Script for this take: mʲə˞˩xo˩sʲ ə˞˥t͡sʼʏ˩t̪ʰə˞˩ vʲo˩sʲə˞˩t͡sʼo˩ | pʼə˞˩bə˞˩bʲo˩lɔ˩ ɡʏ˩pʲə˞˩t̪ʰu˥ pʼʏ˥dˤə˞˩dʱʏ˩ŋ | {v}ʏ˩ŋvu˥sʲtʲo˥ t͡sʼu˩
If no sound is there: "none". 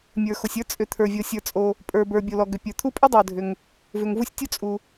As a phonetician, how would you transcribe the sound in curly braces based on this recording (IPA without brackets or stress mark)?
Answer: v